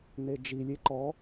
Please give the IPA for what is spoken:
n e d͡ʒ i lʲ e ǃ ɔ

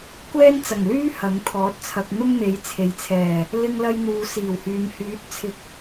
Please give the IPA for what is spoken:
kʷ ɛː˥ n t͡s ɐ˨˩ ŋ l yː˥ h ɐ˨˥ ŋ t̪ʰ ɔː˨˥ t̚ t͡sʰ ɐ˨ k̚ n̪ ʊ˥ ŋ n̪ e˨˥ j t͡sʰ e˨ j t͡sʰ ɛː˨˩ | l ɪ˧ ŋ l ɐ˧ j n̪ uː˨ s iː˨˩ w h yː˨ m h yː˨˥ t̚ t͡sʰ ɪ˨˥ k̚

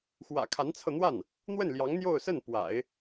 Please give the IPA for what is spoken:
x w ä̰˨˩ kʰ a˧˥ n t͡sʰ ɤ˧ n̪ w a˥˩ n | n̪ w ə˥˩ n l j ɑ˧˥ ŋ n̪ j o˥˧ ʊ̯ s ə˥˩ n p w a̰˨˩˦ ɪ̯

